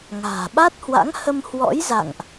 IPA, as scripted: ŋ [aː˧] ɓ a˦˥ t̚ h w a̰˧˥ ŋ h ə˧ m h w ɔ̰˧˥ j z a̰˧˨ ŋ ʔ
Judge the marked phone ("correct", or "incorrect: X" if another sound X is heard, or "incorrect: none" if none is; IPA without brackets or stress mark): incorrect: a̤ː˨˩